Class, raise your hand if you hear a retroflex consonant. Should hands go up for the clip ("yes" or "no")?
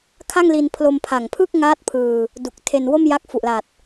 no